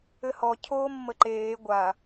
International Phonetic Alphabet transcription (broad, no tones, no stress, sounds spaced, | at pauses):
ɘ h ɔ cʰ oː mː ə ǃ eː ɡʷ a